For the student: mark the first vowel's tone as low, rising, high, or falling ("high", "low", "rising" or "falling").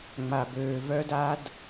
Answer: low